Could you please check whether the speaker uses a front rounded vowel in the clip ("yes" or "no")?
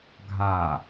no